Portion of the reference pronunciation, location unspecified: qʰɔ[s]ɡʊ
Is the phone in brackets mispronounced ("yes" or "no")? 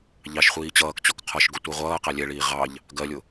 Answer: yes